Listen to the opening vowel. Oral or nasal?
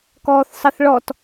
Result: oral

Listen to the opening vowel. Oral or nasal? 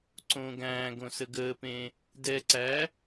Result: nasal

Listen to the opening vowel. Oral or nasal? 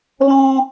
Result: nasal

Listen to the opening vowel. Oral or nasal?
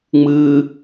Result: oral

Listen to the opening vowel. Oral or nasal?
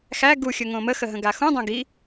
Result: oral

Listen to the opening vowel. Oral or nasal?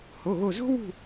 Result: oral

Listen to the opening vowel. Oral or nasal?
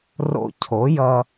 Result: oral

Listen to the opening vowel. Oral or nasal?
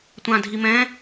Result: nasal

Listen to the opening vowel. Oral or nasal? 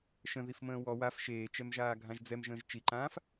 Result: nasal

